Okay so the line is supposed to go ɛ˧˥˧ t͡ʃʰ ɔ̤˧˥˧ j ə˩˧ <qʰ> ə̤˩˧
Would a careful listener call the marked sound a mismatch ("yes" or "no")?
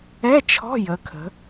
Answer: yes